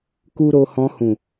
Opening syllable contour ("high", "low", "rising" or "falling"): high